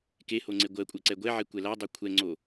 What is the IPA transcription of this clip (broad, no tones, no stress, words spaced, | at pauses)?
keho ŋ͡ǀeɡʷɜkʷʼɜ ǀɛɡʷɛʕe kʷɛladˤɜ kʷʰɛŋ͡ǀo